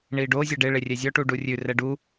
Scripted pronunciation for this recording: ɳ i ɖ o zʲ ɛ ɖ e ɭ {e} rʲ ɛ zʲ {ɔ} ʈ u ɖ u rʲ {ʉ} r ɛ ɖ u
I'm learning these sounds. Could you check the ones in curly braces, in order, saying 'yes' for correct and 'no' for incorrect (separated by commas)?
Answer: yes, yes, yes